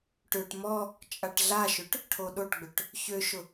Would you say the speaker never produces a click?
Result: yes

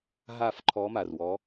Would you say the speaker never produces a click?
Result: no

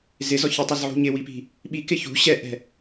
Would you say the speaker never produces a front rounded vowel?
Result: yes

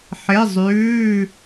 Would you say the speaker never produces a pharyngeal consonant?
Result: no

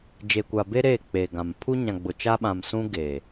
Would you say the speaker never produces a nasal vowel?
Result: no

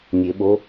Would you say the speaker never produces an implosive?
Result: no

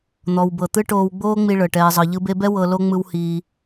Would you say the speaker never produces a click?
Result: yes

